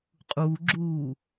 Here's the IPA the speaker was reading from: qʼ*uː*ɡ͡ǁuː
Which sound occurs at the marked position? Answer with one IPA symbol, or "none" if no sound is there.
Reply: uː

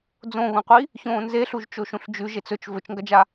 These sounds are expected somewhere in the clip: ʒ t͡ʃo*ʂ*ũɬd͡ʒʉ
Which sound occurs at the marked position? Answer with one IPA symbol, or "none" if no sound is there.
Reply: ʃ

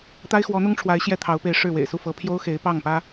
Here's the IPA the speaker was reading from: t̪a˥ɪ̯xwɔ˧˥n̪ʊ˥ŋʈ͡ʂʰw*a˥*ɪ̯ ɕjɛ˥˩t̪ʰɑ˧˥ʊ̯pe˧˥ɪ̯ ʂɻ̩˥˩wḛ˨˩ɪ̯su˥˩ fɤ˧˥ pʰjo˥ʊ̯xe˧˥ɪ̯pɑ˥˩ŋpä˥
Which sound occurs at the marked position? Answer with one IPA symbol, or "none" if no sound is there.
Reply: a˧˥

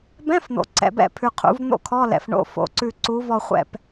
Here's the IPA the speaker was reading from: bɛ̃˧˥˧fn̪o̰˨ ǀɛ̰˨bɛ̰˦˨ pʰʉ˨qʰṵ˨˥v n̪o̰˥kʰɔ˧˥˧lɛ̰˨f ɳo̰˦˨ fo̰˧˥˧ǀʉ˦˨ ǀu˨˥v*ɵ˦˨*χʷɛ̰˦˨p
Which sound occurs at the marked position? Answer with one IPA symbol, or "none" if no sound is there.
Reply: ɔ˦˨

